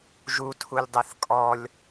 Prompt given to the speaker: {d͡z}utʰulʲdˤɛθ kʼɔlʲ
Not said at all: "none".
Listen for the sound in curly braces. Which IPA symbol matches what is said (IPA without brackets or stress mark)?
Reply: ʒ